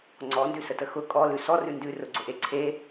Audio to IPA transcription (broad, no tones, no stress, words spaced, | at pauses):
ŋ͡ǀɔndʉsətə xʊ kʼɔlʉ sɔrʉ ndʉrʊɡ͡ǀʊʔe ǀʰe